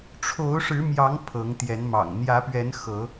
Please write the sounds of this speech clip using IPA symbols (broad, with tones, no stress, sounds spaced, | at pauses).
ʈ͡ʂʰ o˨˦ ʊ̯ ʂ ɻ̩˨˦ m j ɑ˨˦ ŋ pʰ ɤ˨˦ ŋ t̪ j ɛ˨˦ n m ɑ̰˨˩ ŋ n̪ j ä˨˦ p ɥ ɛ˨˦ n x ɤ˨˦